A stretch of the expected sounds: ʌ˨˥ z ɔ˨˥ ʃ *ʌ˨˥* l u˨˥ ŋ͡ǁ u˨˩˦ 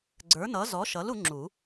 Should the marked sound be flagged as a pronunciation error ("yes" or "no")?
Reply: no